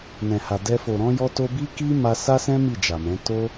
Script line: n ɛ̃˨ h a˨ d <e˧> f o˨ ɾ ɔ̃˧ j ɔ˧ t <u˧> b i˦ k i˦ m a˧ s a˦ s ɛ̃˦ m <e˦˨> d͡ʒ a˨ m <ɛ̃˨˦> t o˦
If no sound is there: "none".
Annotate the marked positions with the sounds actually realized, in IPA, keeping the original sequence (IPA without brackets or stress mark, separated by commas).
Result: ɛ˧, o˧, i˦˨, ɛ̃˨˦